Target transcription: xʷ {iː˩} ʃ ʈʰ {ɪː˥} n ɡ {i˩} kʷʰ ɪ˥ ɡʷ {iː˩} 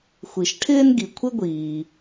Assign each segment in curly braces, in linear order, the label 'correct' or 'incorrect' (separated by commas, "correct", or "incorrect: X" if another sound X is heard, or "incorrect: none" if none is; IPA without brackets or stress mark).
incorrect: i˩, correct, correct, correct